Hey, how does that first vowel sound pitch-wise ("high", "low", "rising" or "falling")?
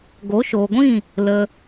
rising